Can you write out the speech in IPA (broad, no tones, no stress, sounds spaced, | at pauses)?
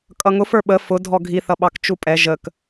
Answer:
kʼ ʌ ŋ ʊ f ə˞ ɓ ə f ʊ dʱ ɔ ɡʱ i θ ʌ ɓ ɑ k t͡ʃ u pʼ ɛ ʒ ə k